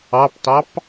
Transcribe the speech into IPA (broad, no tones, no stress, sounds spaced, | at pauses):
ɑ p t ɑ p